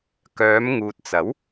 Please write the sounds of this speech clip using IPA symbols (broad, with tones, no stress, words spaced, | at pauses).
kœː˨˧m ŋuː˨t̚t͡sɐ˨˥w